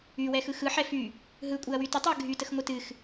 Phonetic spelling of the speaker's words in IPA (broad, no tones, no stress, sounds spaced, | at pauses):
y w ɛ x ɯ x ɯ ħ ɛ f y | ɦ ɯ kʷʼ ɨ ɐ̯ w y t ə tˤ ɯ ɐ̯ ɡʱ y t ə x ŋʷ ɯ t ɨ x